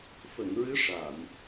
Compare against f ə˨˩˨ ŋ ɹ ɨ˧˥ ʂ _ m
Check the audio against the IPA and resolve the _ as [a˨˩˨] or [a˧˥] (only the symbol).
a˨˩˨